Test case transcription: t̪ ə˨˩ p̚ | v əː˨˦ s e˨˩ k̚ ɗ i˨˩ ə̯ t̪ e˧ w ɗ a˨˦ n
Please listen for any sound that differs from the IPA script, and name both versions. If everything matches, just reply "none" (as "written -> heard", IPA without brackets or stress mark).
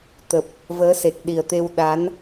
none